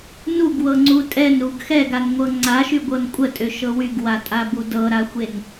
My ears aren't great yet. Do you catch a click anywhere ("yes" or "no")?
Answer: yes